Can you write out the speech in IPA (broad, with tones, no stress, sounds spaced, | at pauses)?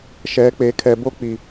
ʃ ɛ˨˦ k͡p e˨ kʰ ɛ˨ b o˦ k͡p i˨